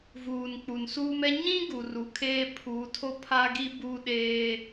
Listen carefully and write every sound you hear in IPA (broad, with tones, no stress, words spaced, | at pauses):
vuː˨nk͡pu˨nsuː˦mɛ˦ ɲĩ˦ ɡu˨ru˨kʰeː˦ pʰuː˨˦tʰo˦ pʰa˦ɡi˦ bu˦ ɗeː˦